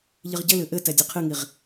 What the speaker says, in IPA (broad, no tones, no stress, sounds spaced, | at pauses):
ʎ ɨ ʁ ɟ ɘ l ɨ ʔ ɘ t ɛ dʲ e qʰ ɨ ŋ i ʁ